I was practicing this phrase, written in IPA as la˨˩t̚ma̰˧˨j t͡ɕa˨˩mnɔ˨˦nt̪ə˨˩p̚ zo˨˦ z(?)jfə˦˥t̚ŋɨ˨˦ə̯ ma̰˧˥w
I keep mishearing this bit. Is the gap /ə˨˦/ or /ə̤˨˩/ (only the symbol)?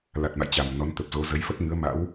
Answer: ə˨˦